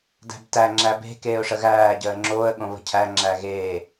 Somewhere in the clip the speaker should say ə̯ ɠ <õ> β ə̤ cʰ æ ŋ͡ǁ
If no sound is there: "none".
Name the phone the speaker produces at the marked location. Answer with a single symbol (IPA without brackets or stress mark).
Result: õ